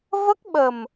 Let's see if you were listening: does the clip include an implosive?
yes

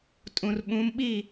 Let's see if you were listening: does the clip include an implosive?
yes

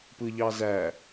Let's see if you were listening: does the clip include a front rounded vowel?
no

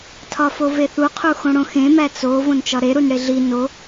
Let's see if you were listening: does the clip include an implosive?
no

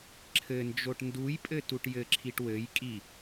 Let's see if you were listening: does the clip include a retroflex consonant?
yes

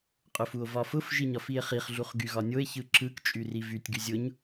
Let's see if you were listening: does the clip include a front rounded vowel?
yes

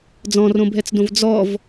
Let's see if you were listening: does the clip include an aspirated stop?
no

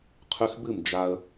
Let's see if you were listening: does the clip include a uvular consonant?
yes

